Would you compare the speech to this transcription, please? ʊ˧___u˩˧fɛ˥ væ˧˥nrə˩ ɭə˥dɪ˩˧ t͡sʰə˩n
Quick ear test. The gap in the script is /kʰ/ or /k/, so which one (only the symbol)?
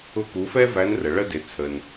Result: k